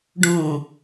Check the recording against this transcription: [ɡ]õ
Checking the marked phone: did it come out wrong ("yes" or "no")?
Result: yes